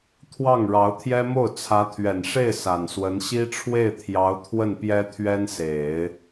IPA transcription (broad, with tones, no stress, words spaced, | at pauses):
t̪ʰwɑ˥˩ŋ ɻɑ˧˥ʊ̯t̪ʰjɛ˥mo˥˩ʊ̯ t͡sʰä˧˥t̪ʰɥɛ˨˩nʂe˥˩ɪ̯ sa˨˩nswə˧˥n ɕi˥ʈ͡ʂʰwe˥˩ɪ̯t̪ʰjɑ˧˥ʊ̯ t̪ʰwə˥˩npjɛ˥ t̪ʰɥɛ˥nse˨˩˦ɪ̯